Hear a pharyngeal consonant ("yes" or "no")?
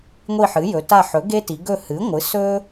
yes